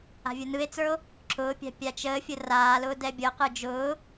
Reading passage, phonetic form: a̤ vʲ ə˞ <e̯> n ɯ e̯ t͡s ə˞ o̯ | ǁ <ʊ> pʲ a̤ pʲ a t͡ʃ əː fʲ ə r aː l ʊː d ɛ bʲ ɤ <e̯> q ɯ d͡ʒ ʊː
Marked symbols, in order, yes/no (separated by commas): no, no, no